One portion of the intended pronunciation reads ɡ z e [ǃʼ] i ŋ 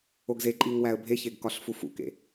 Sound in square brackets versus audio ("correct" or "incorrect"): correct